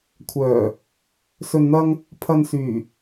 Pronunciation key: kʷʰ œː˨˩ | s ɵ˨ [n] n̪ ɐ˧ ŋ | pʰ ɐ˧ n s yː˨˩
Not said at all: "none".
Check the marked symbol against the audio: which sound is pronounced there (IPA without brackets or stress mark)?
n